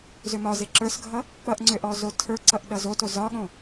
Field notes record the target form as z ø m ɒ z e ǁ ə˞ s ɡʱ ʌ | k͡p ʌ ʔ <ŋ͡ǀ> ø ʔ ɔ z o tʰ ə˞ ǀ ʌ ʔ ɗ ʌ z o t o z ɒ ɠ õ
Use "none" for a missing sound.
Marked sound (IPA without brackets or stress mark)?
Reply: ŋ͡ǀ